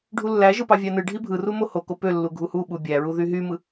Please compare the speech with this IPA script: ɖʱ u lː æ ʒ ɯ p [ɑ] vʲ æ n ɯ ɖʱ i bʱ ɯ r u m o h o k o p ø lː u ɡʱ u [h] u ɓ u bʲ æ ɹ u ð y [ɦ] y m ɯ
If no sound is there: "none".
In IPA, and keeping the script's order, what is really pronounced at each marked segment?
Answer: ɑ, h, ɦ

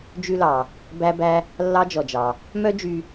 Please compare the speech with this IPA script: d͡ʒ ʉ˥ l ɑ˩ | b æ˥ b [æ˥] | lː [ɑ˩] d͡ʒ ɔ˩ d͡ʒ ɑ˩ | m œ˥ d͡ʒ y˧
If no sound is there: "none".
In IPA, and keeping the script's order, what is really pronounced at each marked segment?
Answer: æ˥, ɑ˥

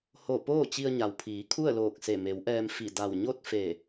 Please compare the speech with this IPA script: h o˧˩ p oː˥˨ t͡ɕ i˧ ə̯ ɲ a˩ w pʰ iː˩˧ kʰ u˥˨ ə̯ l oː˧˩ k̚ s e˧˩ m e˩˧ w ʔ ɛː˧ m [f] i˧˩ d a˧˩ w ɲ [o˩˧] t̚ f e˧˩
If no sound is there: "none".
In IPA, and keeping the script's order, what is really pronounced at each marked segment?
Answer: f, o˥˨

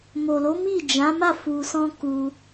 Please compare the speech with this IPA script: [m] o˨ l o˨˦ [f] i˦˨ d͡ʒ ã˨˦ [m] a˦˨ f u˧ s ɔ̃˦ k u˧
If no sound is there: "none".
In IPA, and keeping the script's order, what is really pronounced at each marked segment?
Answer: m, m, m

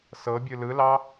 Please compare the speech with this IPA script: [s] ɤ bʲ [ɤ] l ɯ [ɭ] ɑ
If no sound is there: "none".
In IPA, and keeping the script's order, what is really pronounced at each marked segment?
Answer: s, ɯ, l

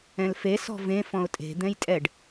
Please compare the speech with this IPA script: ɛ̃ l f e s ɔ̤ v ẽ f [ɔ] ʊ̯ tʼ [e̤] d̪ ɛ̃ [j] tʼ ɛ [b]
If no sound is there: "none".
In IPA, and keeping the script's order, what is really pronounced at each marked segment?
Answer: ɔ̃, e̤, j, ɖ

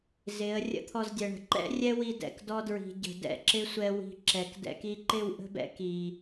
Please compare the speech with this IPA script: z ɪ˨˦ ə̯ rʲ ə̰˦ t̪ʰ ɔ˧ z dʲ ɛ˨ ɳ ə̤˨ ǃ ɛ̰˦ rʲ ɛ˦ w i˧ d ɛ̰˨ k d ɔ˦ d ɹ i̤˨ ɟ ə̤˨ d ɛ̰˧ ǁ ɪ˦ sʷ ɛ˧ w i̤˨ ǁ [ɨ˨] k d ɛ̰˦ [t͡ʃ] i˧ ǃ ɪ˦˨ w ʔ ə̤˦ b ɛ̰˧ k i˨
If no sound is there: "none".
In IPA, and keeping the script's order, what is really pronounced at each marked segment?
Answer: ɛ˨, k

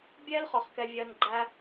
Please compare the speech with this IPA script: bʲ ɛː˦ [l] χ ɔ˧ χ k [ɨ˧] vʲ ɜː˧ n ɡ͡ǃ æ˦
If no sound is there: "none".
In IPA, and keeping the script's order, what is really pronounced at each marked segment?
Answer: l, ɛ˧

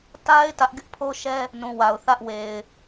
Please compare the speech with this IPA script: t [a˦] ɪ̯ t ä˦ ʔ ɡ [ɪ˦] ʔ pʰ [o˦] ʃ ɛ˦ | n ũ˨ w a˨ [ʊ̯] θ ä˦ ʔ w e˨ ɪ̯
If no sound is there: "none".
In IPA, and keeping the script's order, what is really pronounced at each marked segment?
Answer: a˦, ɪ˦, o˦, ʊ̯

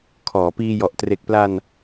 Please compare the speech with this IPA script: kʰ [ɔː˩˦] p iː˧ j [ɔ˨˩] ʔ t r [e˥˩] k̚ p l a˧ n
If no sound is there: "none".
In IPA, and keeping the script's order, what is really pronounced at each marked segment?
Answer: ɔː˩˦, ɔ˨˩, e˨˩

